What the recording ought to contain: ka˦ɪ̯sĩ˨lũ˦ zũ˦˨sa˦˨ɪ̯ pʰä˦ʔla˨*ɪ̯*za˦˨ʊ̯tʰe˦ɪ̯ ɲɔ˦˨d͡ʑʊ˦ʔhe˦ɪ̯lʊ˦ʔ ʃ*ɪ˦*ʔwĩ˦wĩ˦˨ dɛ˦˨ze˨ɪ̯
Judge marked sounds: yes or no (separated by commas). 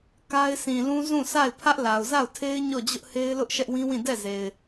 no, no